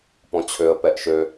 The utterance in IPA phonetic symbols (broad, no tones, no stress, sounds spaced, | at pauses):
p ɔ̃ t͡ɕʰ ø ə̯ p ɛ ʔ ʃ ø